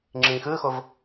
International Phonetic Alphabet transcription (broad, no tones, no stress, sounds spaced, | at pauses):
ŋ͡ǁ ĩ x ɯ x o v